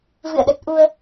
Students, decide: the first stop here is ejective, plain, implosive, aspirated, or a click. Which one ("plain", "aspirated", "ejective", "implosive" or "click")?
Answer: implosive